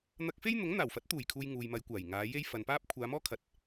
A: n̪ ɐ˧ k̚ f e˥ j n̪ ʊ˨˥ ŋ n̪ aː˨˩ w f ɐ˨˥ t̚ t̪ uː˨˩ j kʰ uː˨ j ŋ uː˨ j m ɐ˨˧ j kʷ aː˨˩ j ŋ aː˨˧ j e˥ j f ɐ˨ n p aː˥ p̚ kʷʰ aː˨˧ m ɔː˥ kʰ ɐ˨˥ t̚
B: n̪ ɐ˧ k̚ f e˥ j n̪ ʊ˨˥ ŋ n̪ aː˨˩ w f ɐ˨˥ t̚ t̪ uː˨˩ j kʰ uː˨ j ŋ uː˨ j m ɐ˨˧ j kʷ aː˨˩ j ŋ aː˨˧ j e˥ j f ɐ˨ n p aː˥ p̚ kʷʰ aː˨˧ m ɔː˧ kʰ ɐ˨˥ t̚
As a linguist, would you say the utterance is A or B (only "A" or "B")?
A